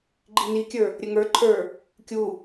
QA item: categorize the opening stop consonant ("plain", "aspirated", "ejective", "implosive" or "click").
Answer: click